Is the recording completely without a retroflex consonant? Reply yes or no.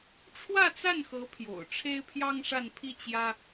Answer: no